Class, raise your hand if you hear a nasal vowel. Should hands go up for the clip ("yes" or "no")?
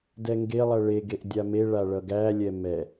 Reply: no